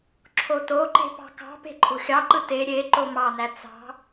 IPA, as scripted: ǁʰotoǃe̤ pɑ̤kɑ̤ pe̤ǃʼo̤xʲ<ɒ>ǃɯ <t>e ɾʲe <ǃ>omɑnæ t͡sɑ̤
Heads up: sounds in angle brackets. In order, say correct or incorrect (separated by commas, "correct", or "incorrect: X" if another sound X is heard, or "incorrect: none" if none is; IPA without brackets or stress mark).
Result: incorrect: ɑ, correct, correct